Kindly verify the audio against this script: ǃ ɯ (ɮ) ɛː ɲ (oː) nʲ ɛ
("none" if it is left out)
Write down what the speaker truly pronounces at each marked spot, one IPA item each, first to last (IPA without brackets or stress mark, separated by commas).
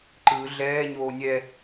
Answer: ɮ, oː